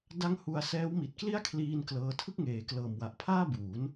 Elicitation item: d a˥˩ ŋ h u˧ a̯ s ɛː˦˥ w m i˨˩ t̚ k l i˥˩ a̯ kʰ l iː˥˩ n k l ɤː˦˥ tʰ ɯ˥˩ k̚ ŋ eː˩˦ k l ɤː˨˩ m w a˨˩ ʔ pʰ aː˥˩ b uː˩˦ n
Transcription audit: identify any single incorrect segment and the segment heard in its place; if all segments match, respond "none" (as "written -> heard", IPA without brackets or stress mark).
none